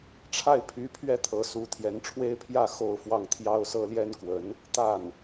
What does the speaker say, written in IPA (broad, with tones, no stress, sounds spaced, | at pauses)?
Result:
ʈ͡ʂʰ a˥˩ ɪ̯ pʰ y˧˥ pʰ ɥ ɛ˥ t̪ʰ ɤ˧˥ s u˧˥ t̪ʰ j ɛ˧˥ n ʈ͡ʂʰ w e˥ ɪ̯ pʰ j ä˥˧ x o˥˧ ʊ̯ f w ɑ˥˩ ŋ t̪ʰ j ɑ˥ ʊ̯ s ɤ˥ l j ɛ˥ n k w ə˧˥ n | t̪ a˥˩ n